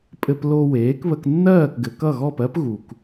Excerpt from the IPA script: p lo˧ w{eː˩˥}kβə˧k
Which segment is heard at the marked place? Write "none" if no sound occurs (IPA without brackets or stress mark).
eː˩˥